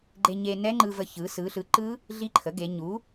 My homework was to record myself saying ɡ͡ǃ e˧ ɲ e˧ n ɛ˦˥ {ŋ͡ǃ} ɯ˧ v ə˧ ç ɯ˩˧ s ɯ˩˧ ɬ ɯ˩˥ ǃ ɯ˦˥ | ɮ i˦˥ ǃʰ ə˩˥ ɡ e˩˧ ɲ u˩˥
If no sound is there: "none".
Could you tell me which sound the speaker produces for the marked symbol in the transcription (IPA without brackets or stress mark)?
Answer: ŋ͡ǃ